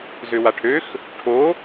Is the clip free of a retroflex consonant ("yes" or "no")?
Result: no